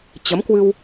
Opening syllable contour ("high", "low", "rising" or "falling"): rising